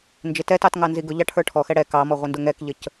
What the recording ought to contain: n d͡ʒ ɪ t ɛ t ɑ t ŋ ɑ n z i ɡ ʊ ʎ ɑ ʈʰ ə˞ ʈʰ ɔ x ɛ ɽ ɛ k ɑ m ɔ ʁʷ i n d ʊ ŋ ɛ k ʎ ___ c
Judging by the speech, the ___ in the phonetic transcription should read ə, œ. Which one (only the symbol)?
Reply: ə